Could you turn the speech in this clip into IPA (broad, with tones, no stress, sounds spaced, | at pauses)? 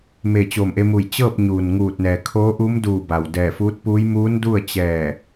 m e˧˩ t͡ɕ o˧˩ m ʔ e˧ m u˧˩ j t͡ɕ ɤː˥˨ p̚ ɲ uː˩ n ŋ uː˧˩ t̚ n ɛː˩ kʰ oː˧˥ ʔ u˧˥ m d uː˧˩ b a˩ w d ɛː˧˩ f uː˧˥ t̚ p uː˧˥ j m uː˧˥ n d u˥˨ ə̯ t͡ɕ ɛː˧˩